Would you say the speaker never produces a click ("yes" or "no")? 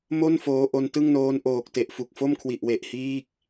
yes